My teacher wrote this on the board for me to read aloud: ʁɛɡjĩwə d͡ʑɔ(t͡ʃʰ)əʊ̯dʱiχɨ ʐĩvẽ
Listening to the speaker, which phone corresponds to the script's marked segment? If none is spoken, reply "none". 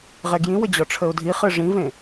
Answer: ʈ͡ʂʰ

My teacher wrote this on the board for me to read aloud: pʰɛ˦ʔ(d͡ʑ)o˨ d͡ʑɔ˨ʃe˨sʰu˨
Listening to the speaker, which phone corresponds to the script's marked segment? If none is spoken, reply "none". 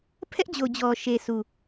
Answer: d͡ʑ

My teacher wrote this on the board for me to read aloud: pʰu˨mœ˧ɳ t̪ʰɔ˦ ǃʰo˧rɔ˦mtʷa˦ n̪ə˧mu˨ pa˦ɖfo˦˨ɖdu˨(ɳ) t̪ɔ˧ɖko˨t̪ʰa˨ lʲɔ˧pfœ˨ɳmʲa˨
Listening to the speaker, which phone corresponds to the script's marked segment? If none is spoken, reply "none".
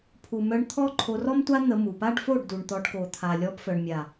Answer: ɳ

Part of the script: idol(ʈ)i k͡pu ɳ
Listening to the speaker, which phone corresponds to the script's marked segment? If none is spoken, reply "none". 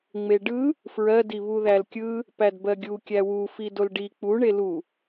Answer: ɖ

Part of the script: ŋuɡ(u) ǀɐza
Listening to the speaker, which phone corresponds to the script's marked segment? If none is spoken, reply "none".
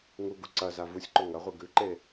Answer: u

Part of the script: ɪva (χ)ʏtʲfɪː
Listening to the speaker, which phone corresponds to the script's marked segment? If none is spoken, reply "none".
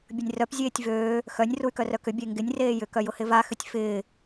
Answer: x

